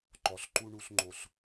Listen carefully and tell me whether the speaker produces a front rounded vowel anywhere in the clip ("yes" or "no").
no